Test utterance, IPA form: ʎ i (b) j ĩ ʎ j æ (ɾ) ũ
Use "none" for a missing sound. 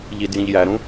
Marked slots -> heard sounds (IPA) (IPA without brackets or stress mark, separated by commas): d, ɾ